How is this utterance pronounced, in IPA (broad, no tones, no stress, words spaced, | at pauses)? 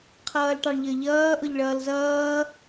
qʰʌːlʈɑɳʎə˞ʎʌː ʔʊʎɭʌːlzʌː